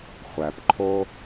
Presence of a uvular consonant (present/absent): present